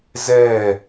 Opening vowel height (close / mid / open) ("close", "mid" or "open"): mid